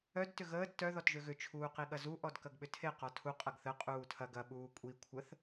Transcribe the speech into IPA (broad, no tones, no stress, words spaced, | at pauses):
œd tʏɣəːd tœ ðɔtʒøɣʏ t͡ʃʰuːqiɠɐzu ʔɔdkɐɡɓʏtʰe qɔtʰu qʼɐɡθə qʼuːtʰɐɡ ɐ ɓuːkʷʼi kʷʰəθ